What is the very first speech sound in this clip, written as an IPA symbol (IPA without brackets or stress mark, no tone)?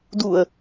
d